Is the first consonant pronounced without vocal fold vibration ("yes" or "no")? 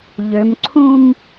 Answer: no